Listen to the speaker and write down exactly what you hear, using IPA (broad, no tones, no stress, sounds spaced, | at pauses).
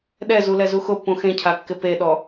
ɗ ɛ z u l ɛ z u x ʊ pː ũ x ẽ cʰ a kː ɪ p e ɗ ɔ